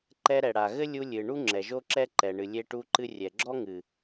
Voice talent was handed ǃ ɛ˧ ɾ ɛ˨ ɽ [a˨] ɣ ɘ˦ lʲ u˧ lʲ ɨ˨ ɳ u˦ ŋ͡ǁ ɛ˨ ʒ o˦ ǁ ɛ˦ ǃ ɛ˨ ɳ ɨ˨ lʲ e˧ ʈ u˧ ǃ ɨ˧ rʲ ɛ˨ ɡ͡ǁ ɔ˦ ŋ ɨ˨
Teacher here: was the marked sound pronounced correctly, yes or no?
yes